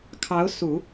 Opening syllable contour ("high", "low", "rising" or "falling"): rising